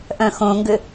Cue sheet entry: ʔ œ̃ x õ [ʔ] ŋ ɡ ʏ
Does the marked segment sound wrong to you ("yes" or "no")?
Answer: yes